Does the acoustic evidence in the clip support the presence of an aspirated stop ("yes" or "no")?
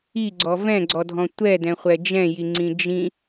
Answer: no